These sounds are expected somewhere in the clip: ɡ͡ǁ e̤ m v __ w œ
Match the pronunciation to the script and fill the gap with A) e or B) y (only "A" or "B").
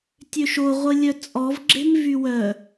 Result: B